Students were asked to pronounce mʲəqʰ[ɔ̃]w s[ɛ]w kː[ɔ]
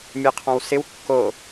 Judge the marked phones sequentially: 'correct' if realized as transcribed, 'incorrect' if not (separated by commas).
correct, incorrect, incorrect